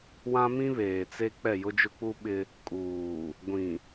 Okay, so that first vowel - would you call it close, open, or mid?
open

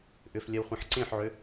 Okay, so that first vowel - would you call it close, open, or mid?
close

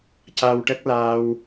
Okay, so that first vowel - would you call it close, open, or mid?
open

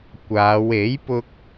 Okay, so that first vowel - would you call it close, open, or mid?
open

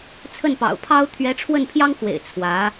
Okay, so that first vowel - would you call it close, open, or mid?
mid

